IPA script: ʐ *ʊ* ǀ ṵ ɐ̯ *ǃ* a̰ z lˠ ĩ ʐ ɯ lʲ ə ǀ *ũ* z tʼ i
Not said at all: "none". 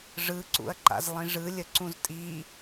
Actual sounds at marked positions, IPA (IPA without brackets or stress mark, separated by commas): ɯ, ǃ, ũ